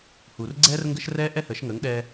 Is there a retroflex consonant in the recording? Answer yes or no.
no